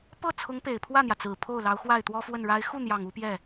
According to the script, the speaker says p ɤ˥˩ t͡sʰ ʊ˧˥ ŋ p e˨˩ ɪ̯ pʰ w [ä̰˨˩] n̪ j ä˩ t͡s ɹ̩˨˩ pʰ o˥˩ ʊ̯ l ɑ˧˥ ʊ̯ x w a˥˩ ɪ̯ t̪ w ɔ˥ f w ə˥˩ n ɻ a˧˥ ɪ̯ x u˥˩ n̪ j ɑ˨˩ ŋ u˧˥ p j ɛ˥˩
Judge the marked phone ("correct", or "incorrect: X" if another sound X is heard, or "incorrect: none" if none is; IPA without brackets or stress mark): incorrect: ä˥˩